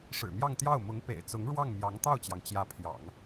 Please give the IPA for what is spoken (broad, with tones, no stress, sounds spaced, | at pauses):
ʂ ɻ̩˨˩ m j ɑ˥˧ ŋ t̪ j ɑ˥˩ ʊ̯ m ʊ˧˥ ŋ p ḛ˨˩ ɪ̯ t͡s ʊ˧˥ ŋ ɻ w ɑ˥˩ ŋ m j ɑ˧˥ ŋ t̪ ɑ˥˩ ʊ̯ t͡ɕ j ɑ˩ ŋ t͡ɕ j ä˧˥ pʰ j ɑ̰˨˩˦ ŋ